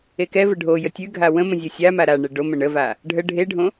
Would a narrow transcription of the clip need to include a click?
no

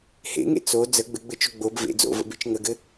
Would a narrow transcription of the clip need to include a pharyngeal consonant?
no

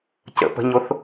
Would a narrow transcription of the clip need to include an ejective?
no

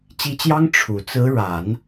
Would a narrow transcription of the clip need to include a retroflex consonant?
yes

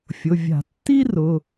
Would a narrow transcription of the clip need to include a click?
no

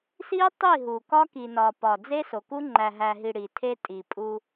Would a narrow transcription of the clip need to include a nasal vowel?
no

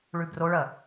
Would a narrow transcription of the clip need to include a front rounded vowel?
no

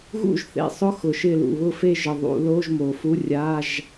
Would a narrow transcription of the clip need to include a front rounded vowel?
no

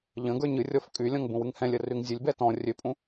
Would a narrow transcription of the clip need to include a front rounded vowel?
yes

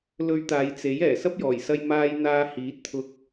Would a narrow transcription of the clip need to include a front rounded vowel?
no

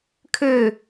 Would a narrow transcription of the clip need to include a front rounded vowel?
yes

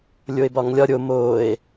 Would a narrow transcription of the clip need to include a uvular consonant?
no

